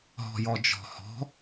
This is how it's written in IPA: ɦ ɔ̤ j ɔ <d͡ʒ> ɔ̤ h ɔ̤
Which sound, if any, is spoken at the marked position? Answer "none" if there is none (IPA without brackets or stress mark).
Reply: d͡ʒ